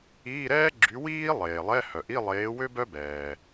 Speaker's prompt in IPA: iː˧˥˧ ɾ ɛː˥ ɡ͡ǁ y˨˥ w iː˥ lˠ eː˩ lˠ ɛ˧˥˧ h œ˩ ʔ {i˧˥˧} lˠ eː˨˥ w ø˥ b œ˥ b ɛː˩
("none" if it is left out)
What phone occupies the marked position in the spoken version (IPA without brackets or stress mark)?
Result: i˧˥˧